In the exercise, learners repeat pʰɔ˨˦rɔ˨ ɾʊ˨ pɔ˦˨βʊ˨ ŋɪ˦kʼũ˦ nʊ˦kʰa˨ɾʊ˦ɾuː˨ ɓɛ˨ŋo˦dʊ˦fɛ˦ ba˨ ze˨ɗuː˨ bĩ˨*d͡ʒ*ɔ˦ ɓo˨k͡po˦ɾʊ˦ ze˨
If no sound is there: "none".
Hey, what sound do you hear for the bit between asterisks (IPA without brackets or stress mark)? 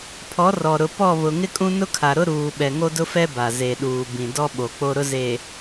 d